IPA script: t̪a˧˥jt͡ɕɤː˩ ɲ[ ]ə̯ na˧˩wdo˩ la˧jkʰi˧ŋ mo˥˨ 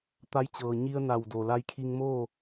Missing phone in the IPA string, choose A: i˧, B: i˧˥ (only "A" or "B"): A